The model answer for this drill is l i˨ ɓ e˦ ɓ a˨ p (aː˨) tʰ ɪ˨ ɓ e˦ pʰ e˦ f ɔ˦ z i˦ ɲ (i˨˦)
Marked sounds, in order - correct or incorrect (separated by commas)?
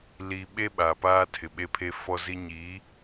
incorrect, correct